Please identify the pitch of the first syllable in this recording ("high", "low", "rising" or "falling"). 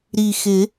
low